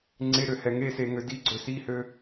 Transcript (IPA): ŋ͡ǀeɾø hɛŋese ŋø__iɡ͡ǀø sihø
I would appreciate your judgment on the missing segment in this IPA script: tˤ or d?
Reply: d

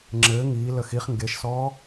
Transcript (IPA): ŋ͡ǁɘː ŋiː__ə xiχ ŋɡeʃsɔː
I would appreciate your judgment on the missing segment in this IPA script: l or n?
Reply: l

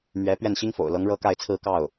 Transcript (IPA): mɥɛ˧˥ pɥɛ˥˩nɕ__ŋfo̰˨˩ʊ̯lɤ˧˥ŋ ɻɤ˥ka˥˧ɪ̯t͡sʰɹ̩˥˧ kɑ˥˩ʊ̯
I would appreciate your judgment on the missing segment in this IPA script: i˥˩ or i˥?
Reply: i˥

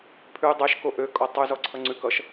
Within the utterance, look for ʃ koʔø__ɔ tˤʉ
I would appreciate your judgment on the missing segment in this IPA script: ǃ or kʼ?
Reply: kʼ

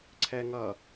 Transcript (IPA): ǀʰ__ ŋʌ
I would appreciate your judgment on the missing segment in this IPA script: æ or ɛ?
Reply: ɛ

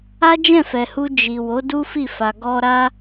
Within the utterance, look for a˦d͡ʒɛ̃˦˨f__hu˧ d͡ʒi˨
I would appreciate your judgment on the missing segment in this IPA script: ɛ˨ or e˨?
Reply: ɛ˨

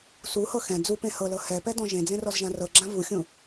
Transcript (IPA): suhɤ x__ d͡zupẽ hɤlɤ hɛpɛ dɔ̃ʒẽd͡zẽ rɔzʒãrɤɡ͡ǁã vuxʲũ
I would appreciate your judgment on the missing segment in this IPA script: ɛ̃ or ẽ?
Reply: ɛ̃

